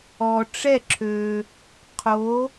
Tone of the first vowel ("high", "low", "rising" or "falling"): low